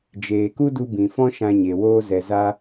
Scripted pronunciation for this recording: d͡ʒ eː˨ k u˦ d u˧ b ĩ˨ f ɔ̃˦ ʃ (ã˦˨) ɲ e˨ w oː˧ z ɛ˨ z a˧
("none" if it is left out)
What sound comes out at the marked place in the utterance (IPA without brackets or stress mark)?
ã˧